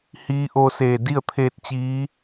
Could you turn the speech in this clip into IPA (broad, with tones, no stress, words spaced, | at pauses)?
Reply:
hiː˧˥ʔo˧seː˧˩ di˥˨ə̯t̪ʰeː˧t̚t͡ɕiː˧˥